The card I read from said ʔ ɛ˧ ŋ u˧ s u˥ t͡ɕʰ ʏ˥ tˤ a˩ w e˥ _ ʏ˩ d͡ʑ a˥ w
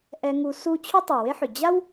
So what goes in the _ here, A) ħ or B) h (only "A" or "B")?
A